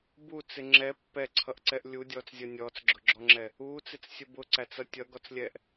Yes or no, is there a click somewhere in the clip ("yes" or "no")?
yes